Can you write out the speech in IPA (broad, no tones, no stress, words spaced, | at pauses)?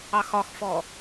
ɑxɒxfɔ